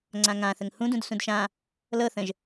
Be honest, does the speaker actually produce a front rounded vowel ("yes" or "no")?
no